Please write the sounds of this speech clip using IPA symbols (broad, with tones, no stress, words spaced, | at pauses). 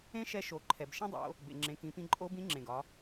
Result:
ẽ˥ʃɛ˧˥ ʃo˩˧ǃʰɛ˩b ʃẽ˥dˤo̰˩˧ | bḛ˩ ŋ͡ǁẽ˩˧kĩ˩˧pĩ˧ ǃʼo˧˥bĩ˧˥ ŋ͡ǁẽ˩ɡɒ˩˧